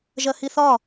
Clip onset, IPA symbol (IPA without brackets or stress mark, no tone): ʒ